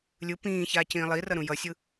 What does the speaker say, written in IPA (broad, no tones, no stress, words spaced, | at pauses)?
lʲɯ pĩː çaːcĩːlˠirʌ ɾũjʌsʲɯ